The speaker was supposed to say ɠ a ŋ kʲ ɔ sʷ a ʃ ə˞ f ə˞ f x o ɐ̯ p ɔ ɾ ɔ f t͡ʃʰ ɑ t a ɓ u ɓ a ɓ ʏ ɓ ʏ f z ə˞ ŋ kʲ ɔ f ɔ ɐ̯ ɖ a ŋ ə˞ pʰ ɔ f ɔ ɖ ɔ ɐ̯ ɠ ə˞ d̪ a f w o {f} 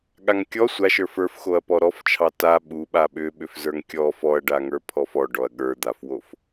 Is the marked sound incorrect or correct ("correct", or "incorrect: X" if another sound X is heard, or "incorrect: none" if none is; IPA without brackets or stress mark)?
correct